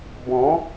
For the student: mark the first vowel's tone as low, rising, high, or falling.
rising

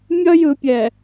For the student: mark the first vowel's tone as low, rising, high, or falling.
high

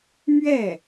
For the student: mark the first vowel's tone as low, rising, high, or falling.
falling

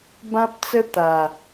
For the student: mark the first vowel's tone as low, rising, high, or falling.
high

